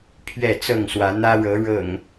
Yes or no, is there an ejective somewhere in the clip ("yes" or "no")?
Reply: no